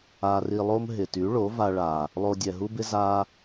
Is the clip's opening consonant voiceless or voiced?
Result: voiced